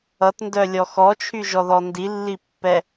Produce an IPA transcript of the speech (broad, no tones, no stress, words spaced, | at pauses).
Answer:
ʌtndœlʲɔ xɔt͡ʃʰyʒɔðɔ ndilːipːɛ